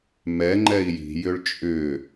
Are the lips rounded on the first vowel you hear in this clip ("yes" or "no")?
no